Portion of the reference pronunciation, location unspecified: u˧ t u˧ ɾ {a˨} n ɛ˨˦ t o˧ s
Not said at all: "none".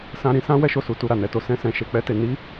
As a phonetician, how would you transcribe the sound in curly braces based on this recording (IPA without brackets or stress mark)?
a˨